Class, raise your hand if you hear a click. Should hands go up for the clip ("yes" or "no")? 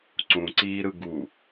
yes